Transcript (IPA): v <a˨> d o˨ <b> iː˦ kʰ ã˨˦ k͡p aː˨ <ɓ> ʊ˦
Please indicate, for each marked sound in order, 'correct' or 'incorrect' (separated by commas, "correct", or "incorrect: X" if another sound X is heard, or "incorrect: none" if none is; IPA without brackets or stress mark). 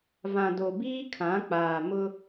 incorrect: ã˨, correct, incorrect: m